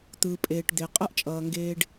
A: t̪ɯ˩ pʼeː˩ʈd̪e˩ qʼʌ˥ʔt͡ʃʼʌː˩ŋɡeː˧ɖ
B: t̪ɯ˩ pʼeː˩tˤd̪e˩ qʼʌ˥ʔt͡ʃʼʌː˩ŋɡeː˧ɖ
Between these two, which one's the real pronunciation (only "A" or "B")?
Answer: A